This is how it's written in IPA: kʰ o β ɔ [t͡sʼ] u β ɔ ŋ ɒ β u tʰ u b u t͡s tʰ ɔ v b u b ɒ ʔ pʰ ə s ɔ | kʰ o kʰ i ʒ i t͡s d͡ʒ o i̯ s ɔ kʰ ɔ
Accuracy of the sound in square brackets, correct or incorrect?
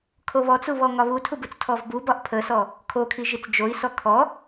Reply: incorrect